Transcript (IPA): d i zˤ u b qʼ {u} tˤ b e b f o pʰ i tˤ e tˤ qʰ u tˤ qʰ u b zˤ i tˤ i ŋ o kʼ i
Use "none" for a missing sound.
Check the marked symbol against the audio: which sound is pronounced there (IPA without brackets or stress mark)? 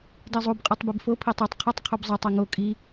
u